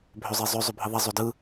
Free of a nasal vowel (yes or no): yes